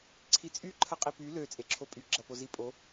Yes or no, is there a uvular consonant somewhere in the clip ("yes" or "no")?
yes